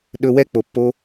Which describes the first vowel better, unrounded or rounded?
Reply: rounded